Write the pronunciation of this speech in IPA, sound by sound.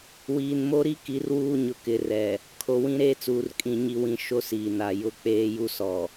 wiː˨nmo˦ɾi˦ ki˨˦rwuː˦ɲʊ˨ kɪ˨rɛ˨ | kʰo˨wĩ˦ɾeː˦t͡suː˨r kʼĩ˨ɲi˨wĩ˨ ʃo˦siː˨na˨ jʊ˦k͡peː˦ju˦sɔ˨

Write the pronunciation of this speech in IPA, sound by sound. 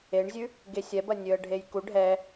eɳzʲʉ | ɡesʲɛbɐ nʲøə̯ɖʱejku ɖʱɛ

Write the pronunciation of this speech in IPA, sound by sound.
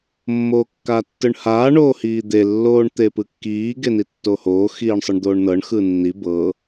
mːoːkːaːtːɯɳhaː ɳoːhiːd̪e lːoːɳt̪epɯkːiː ɡenitːohoː xiːɳsˤɯɳd̪oːɳnɤɳ xɯnːi bɤ

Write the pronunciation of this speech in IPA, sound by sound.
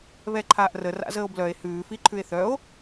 βɛǃʰaːʔrə ra̰zəːo̯blœe̯ hʉːfi ǃʰʉe̯θœo̯

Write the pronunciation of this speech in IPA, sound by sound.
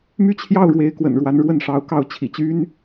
my˥˧t͡ɕʰjɑ˥˩ʊ̯ ɻwe˧˥ɪ̯kwə̰˨˩nɻwa˧˥n ɻwə˥˩nʂɑ˧˥ʊ̯kɑ˥˩ʊ̯ t͡ɕʰḭ˨˩t͡ɕy˥n

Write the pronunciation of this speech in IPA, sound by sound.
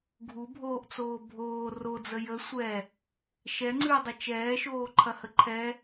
ɡʱubʱoːʔt͡soː bʱoː rod͡zə jə sʷɛ | ʃɛŋ͡ǀʉɐ̯dˤə t͡ʃɛːʃoːǃʰɐhə ǃʰɛ

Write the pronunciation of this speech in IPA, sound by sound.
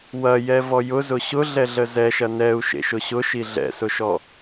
wɐjɛ vɔjʊ zʊɕʊɮɛɮə zɛʃɐ nɛu̯ʃḛ ʃʊɕʊʃi ɮɛ̰sʊʃɔ

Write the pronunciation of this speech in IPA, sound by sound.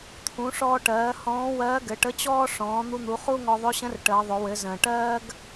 t̪ʰũ˩˧ʂɔː˧ʈɜː˩˧ hɔ̃ː˧˥wɜː˧˥ɡɘ˩˧ ʈə˧˥t͡ɕɔː˥ ʂɔ̃ː˩˧n̪u˧n̪u˩˧ χu˥ŋɔ˧ ðˤɵ˧˥ɕə̃˧˥r ʈəː˩˧ðˤɵ˩˧ wɘ˩˧zə̃ː˩ʈɜː˥ɡ

